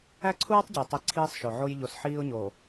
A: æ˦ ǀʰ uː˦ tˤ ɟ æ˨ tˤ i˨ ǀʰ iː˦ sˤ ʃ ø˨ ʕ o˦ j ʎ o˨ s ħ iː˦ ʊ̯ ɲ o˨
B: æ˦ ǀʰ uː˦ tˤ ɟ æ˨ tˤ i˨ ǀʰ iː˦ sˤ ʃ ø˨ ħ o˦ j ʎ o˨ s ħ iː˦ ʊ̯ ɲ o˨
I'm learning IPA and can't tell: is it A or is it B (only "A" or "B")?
A